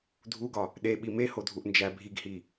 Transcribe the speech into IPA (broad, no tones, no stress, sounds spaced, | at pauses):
dʱ u ɡ ɒ | ɗ e ɓ i m e h o dʱ u ʔ n d͡ʒ æ bʱ i ɡ h i